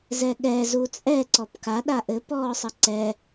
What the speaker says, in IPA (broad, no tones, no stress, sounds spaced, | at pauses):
z ɛ ɠ ɛ z u t͡sʼ ɛ ǀ ɔ p k a ɗ a ʔ ɘ p ɔː sˤ ɘ ǀ ɛ